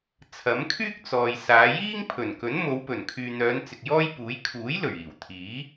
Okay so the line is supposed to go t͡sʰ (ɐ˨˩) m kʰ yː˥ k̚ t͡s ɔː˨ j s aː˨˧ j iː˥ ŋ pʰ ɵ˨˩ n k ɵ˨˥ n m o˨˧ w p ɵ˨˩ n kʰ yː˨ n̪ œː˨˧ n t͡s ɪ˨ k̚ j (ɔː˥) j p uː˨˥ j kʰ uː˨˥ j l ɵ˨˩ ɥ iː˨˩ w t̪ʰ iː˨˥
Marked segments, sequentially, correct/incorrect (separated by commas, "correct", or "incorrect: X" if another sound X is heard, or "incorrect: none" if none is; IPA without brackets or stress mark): incorrect: ɐ˨˥, correct